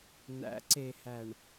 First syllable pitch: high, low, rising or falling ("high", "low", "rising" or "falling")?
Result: rising